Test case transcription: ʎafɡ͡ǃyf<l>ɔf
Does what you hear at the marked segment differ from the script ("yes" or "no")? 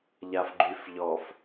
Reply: yes